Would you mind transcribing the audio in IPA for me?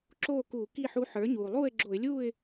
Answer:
ǁoː˥˨kuː˧˩˧ki˥˨ħu˧˥ ħə˞˩˥ɲuː˩ lˠuː˥˨ɪ̯ɡ͡ǁo˧˩˧ɪ̯lʲuː˥˨ɪ̯

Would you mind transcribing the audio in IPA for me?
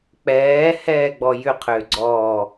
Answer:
k͡pɛː hɛːɡ͡bɔjʏ qʰʏːɡ͡ǀɔː

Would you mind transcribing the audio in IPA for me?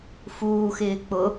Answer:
fuːxɪː k͡pʊ

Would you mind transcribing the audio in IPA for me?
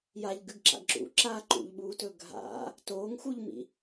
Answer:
jaʎɡʉɡǁa̰ɡ ǁṵ ǁa ǃṵʎɓuːtɵ ɡʱa̰ | toːŋxuʎmḭ

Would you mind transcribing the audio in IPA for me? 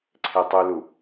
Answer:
ǀʰetˤulu

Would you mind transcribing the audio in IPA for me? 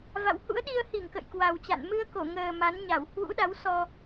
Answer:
va̰˧˨w hṵ˧˥ə̯ɗi˧ə̯hi˧˩ŋ kə̰˧˨jkwa˨˩wt͡ɕa̰˧˨n mɨ˧ə̯ ko˧˩ŋəː˨˩ ma˨˦n ɲa˧˩w hwṵ˧˥ɗa˨˦wsɔ˧

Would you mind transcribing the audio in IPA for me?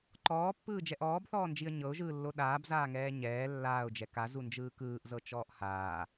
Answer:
ǃɔːpːɯː d͡ʒɛʔɔːbθɔːnd͡ʒiə̯ ɲɤʊ̯ʒɯːlːo ɗaːbzaːŋɛː ɲɛː lːaːʊ̯d͡ʒɛ kazund͡ʒɯː kɯːʔzɤ t͡ʃɔːʔhaː

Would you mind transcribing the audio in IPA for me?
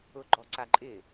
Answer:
ʊɡ͡ǃɔ ǀaǃʼɪ

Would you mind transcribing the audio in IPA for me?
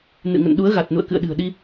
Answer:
nɨ̰˧˨ŋə̰˧˨n ɗu˨˦ə̯ɣa˨˩t̚nṵ˧˨ə̯ kɨ̰˧˨ə̯ɗɨ̤˨˩ə̯ɗi˧

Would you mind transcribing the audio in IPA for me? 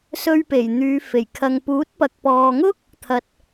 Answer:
sɵ˧ɥpe˨˩jn̪yː˨˧ fe˨˩jkʰɐ˨ŋ puː˨˥t̚pɐ˨k̚pɔː˨ŋʊ˥k̚ | t̪ʰɐ˨t̚

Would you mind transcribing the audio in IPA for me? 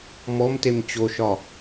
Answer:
mɔm temt͡ɕoʃɒ

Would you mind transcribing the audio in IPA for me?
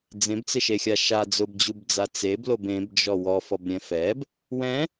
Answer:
d͡zẽbt͡sɪʃexʲa ʃa d͡zʊbd͡ʑubd͡za t͡seblob ẽbd͡ʒɔ wɔfɔbɾʲɛ̃ fɛb | wɛ̃

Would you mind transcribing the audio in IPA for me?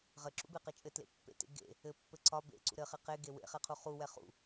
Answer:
ʁɘǁṵbeqɘ t͡ʃʼɘtlḛpːḛtḛ ɡḛ | ɘpːɘ ǀɒ bḛǀṵ ɾɘχe qeɡe wḛχɛqʰu χuwɛ χṵ

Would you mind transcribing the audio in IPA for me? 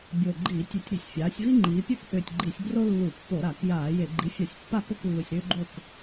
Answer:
bʲo˨˩ɡ͡ǃiː˧˩˧tʲʏ˧˩˧tʲɾi̤˧˩˧sʲ fʲaː˩˧sʲvi˦ ŋ͡ǃiː˩˧pʲœ˥˨kʔʏː˨˩tʲɡ͡ǃi˧˩˧sʲ bro˦ lːu˧˩˧pːo˧˩˧ɾa˧˩˧k jaː˧˩˧je˧˩˧ ɡ͡ǃi˩˥fʲa˧˩˧sʲ pːa˥˨ko˥˨klːu˨˩sʲɾʏː˦ ɡ͡ǃo˥˨k

